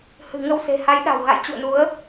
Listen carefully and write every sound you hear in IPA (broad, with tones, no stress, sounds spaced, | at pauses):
h ɨ̤˨˩ ŋ ə˧ w s e̤˨˩ h a˨˦ j ɗ a̤˨˩ w ɣ a̰˧˨ j t͡ɕ ṵ˧˨ ə̯ n u˨˦ ə̯